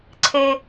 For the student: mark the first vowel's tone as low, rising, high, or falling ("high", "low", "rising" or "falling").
high